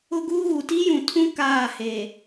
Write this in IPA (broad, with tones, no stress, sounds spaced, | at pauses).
ʊ˦ ɡ uː˦ ɣ u˨ t i˦ j ũ˨ tʰ ũ˦ k aː˦˨ h e˨